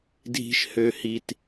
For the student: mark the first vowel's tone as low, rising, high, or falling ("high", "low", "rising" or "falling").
low